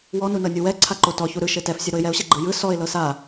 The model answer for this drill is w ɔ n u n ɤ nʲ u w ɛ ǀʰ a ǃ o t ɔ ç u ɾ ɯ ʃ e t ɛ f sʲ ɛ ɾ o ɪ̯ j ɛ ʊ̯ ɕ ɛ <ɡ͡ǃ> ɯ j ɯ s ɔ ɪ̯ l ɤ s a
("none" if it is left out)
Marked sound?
ɡ͡ǃ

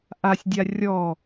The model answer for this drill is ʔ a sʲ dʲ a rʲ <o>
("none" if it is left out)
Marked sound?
ɔ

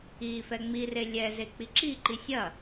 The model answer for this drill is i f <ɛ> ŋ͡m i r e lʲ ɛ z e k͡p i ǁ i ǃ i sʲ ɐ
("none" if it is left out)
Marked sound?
ɛ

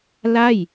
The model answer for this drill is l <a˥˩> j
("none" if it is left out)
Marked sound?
a˥˩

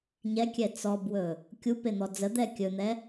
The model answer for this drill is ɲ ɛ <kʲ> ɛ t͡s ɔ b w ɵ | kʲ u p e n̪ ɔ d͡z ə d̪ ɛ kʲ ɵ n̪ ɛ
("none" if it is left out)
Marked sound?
kʲ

